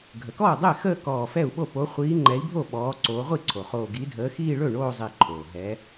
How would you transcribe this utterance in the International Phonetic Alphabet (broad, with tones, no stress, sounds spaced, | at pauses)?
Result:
ɡʱ ə˩ k ɔː˥˩ dˤ ɛ˥˩ x əː˥˧ k ɔː˧˩ f ɛ˥˩ u̯ ɓ o˥˩ p o˨˦ χʷ iː˨˦ ŋ͡ǃ ɛ˨˦ i̯ bʱ o˥˩ ɓ ɔː˨˦ ǀ oː˨˦ ʁʷ i˥˩ ǀʰ o˩ χ oː˧˩ ɡ i˨˦ dʱ əː˨˦ x iː˥˧ ɭ ɵ˥˩ ɳ oː˥˧ zˤ i˧˩ ǃʰ oː˩ ɦ ɛ˨˦